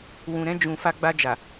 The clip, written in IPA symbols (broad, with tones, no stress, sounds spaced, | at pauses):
w ũ˨ ɾ ɛ̃˧ d͡ʒ ũ˨ f a˧ ɡ͡b a˧ d͡ʒ a˨